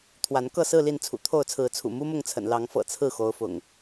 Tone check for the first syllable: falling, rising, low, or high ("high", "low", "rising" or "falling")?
rising